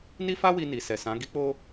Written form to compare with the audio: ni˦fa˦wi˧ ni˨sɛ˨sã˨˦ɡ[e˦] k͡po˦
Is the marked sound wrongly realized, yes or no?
yes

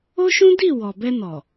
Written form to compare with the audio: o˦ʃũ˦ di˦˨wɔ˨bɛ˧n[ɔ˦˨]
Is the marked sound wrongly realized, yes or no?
yes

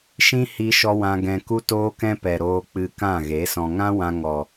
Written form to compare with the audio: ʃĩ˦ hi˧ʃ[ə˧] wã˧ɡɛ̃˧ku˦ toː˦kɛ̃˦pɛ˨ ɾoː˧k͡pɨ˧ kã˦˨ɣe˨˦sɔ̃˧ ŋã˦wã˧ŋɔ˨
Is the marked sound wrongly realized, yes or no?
yes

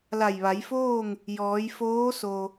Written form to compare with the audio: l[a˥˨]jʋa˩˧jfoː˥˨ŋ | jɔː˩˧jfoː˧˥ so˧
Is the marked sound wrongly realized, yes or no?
yes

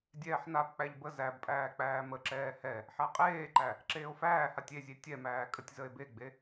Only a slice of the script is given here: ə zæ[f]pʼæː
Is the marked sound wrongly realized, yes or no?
yes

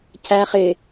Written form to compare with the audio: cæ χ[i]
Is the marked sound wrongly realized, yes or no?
yes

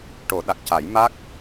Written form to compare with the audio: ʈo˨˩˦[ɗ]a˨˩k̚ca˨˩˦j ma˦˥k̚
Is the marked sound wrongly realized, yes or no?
no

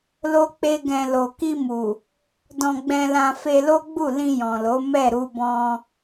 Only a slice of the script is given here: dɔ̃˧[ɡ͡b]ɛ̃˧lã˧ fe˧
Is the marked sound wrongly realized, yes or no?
no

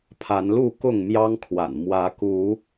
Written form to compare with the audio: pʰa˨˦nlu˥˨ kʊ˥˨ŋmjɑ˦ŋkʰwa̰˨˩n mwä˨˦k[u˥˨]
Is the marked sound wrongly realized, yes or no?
yes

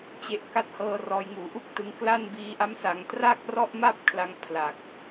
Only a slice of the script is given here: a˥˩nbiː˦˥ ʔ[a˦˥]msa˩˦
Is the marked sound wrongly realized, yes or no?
no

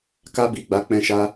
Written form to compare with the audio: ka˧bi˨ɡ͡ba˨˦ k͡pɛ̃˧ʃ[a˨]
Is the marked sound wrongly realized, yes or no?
yes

